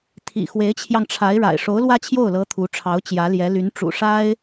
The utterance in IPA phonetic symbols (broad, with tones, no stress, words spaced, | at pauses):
t̪ʰḭ˨˩ xwe˧˥ɪ̯t͡ɕʰjɑ˧ŋʈ͡ʂʰa˧˥ɪ̯ɻa̰˨˩ɪ̯ ʂo˧˥ʊ̯ lwä˥t͡ɕʰjo˥˩ʊ̯lɤ˧˥ t̪ʰu˧˥ʈ͡ʂʰɑ˧˥ʊ̯ t͡ɕjä˧˥ljɛ˧˥ ly˧˥nʈ͡ʂṵ˨˩ʂa˥ɪ̯